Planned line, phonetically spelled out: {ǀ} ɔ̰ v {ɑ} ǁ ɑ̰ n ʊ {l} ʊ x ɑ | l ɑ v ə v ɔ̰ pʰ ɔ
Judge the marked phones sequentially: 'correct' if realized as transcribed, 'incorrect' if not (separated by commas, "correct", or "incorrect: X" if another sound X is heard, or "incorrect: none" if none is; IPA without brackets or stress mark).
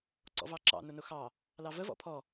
correct, correct, incorrect: n